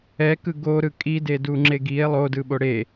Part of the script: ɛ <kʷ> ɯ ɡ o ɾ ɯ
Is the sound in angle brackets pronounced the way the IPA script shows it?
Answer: no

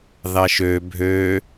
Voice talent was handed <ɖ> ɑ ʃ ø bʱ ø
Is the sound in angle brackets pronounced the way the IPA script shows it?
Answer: no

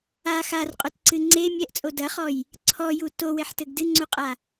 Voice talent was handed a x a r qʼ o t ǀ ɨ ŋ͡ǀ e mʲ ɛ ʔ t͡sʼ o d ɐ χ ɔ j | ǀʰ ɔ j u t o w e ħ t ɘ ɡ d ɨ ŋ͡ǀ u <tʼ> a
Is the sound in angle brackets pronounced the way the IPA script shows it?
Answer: no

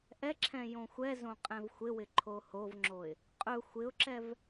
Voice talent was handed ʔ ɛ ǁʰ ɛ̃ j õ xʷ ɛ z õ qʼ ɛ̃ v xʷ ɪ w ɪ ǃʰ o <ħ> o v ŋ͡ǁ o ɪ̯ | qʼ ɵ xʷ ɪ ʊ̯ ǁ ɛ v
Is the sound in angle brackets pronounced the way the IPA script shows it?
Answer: no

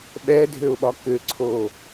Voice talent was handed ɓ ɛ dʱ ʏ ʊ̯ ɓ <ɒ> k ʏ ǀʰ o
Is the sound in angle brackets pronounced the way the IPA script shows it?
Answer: yes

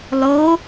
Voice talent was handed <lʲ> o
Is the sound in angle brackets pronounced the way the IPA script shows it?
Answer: no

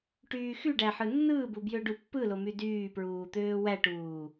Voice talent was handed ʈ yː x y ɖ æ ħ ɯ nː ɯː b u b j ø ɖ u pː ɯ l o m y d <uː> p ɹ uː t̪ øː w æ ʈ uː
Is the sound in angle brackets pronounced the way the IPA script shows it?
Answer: no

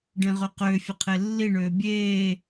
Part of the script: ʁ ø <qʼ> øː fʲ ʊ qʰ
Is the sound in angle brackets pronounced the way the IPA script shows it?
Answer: no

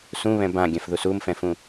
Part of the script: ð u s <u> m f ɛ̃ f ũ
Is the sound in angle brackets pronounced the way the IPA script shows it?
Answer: yes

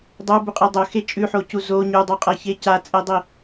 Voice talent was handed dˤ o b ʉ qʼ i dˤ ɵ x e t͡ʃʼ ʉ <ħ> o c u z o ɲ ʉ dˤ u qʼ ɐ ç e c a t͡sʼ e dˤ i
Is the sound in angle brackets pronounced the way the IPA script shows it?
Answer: yes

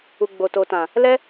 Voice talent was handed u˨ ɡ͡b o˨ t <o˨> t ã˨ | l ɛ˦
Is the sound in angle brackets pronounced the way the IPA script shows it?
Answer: yes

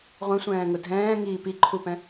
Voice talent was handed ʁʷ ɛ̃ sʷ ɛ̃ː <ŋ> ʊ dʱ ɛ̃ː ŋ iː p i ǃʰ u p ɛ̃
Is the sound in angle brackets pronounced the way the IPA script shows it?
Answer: yes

